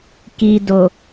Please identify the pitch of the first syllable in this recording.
low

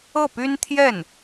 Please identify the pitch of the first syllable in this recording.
falling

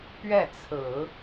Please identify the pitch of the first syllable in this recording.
falling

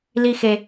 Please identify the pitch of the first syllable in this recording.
high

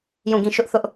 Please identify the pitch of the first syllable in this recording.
falling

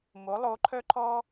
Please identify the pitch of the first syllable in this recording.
rising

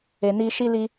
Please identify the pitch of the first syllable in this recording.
low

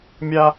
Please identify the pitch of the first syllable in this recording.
high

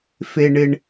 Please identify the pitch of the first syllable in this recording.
high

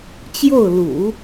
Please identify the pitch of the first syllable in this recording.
falling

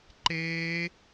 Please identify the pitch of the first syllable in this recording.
high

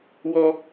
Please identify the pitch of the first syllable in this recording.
high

